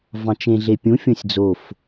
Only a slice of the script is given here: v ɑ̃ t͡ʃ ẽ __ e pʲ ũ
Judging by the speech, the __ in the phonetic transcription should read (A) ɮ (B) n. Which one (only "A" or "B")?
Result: A